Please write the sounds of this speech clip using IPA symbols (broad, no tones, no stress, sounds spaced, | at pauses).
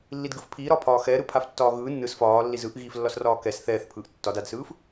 lː i d ɡ ɯ f pʰ iː ɾ ɒː pʰ ɒː x ɛː ɾ ɯ pʰ a f tː ɒː ɣ ɯː nː ɯ s f ɒː lː i z ɯ ʔ ɣ iː f lː ɒ s r ɒː k ɛ s θ ɛː θ pʰ ɯː ʔ tː ɒ d a d s ɯː f